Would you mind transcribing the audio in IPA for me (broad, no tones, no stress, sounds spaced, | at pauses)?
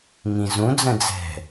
ŋ ĩ z ũ d͡z ə̃ d͡z ɛ̤